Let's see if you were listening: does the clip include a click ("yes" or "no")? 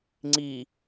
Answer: yes